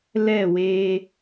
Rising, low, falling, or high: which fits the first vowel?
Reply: falling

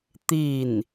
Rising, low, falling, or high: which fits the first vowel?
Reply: falling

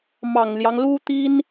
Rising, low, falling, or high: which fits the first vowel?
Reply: low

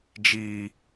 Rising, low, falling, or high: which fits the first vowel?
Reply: low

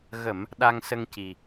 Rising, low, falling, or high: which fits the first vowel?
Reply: low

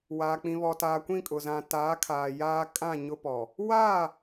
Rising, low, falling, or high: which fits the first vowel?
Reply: low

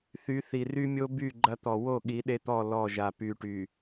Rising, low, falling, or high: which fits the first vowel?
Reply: rising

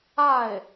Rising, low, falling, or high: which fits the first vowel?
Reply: falling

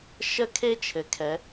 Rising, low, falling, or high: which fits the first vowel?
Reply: high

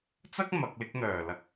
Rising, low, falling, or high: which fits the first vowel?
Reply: high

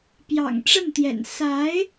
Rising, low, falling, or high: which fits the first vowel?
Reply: low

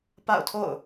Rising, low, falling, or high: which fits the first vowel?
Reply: falling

